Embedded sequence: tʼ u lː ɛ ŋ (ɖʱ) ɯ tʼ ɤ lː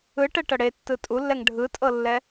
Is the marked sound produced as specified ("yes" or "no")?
yes